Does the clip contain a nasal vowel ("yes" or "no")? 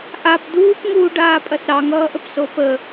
no